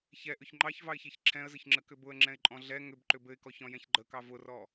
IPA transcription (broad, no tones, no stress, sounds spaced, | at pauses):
ç ɛ ʔ ʏ ç ŋ͡ǃ ɑ ç v ɑ ɪ̯ ç e ç ǁʰ ɛ̃ ə̯ z ɘ ç ŋ͡ǁ ə k ʏ b ʊ ə̯ ŋ͡ǁ ɛ̃ ɪ̯ ǃʼ ɔ̃ ɮ ɛ ŋ ʏ b ǃ ʏ b ɘ ɪ̯ k ɔ ç ɔ̃ j ɛ̃ ç ɡ͡ǃ ə k ɑ v ʊ r ɔ